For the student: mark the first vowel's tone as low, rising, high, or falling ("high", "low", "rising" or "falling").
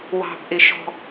low